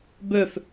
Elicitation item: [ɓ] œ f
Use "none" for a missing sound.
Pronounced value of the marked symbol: b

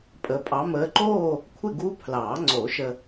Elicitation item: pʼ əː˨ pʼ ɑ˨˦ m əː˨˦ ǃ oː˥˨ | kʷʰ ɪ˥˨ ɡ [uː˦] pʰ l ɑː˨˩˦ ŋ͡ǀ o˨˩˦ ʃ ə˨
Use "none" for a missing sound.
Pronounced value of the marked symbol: uː˦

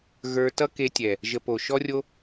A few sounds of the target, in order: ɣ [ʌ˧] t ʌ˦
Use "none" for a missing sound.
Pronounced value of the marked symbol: ə˞˧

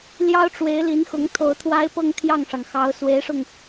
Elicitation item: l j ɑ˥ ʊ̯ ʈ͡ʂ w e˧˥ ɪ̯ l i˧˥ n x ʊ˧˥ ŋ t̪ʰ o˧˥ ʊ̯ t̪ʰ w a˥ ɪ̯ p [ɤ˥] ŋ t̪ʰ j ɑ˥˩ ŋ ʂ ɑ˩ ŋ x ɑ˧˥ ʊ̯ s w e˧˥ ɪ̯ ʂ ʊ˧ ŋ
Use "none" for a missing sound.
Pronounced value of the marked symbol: ɤ˥˧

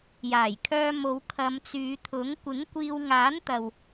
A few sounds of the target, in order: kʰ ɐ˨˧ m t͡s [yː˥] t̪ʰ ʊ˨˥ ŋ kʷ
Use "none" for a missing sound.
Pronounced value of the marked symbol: yː˨˧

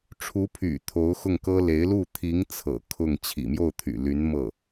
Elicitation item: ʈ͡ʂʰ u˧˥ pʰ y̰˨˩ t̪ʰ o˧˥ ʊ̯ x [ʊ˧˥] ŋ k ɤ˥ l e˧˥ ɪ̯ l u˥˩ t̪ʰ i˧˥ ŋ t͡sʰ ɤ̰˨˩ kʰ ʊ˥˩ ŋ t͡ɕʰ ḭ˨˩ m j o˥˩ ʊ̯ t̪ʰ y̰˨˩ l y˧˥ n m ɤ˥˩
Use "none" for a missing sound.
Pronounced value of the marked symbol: ʊ˥˩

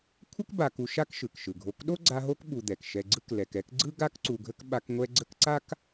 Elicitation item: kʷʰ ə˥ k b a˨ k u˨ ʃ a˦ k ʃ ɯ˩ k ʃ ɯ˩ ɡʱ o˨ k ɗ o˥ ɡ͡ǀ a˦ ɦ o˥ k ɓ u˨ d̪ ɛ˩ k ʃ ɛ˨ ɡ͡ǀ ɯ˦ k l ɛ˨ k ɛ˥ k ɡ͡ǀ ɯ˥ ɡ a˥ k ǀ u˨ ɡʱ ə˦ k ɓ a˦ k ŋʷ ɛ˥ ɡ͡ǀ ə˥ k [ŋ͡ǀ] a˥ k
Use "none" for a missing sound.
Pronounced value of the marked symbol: ǀ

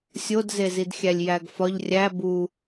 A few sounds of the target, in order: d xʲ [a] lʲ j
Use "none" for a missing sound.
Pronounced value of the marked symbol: æ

